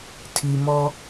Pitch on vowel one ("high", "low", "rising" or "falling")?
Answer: low